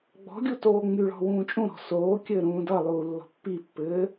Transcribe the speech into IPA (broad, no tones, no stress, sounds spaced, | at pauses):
ɡ͡b ɔ̤ ɡʲ u t oː ŋ͡m y ɭ ɔ̤ w ũː t͡ʃʼ ũ ɾ ɔ̤ s oː kʲ ɘː ɾ ũː d ʌ lˠ uː lː ɔ̤ pː i pː ɘː